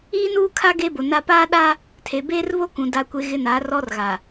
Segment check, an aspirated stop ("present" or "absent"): present